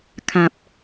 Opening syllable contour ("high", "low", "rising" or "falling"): low